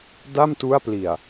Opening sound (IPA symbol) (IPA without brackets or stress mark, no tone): d